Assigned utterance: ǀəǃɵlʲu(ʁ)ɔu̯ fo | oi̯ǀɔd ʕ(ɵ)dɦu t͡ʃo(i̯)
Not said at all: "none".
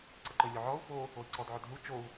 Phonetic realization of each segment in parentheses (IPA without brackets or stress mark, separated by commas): ʕ, ɵ, u̯